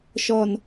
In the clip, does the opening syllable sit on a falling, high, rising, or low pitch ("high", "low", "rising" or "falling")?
low